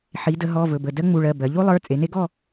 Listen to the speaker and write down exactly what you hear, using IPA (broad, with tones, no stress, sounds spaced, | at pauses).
ħ i˩˧ d ə˩˧ ɦ ɔ˩˧˩ v ɵ˩˧˩ b ə˩˧˩ d ɜ˦ ŋ͡m u˩˧˩ ɭ ɜ˩˧˩ b ɜ˩˧ ʎ u˦ lˠ ə˞˩˧˩ t͡sʼ e˩˧ n e˦ ɡ ɔ˥˨